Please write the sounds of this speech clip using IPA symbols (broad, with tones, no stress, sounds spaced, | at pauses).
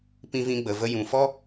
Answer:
p ĩ˧ v ĩ˧ ɡ͡b ə˨ v ə˧ j ũ˨ f ɔ˦